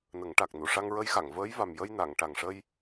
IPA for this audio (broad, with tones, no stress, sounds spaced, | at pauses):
n ə˨˩˦ ŋ ʈ a˨˩ k̚ n u˨˩˨ ʂ a˧ ŋ ɹ ə˧˥ j x a˨˩˨ ŋ v əː˧˥ j v a˨˩ m j ə˧ j n a˨˩˨ ŋ ʈ a˨˩ ŋ ʂ ə˧ j